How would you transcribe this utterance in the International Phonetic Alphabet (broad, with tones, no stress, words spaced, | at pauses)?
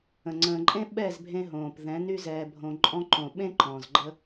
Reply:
ə̃˨ ŋ͡ǀə̃ː˨ǃʼẽ˦ɓɛ˦˨zbʱẽ˧ ɦõː˨p ðɛ̃˨˦ny˦zɛː˧bʱõ˧ ǃʼɔ̃˦ ǃõ˨ɓẽ˦ ǃɔ̃˨zɡ͡ǃə˦